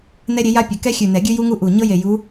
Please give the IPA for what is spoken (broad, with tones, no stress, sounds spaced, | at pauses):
n ɛ˦ ɾʲ e˨˦ j a˦ pʲ ɘ˨˩˦ k ɛ˦ xʲ ʉ˨˩ n ɛ˨˩˦ ɡʲ ʉ˦ j u˦ ŋ u˦ ʔ u˨˩ ɲ ɤ˦ j e˨˩ j u˨˦